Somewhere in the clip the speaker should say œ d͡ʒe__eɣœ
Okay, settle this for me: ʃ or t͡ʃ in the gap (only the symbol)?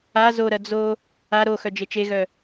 t͡ʃ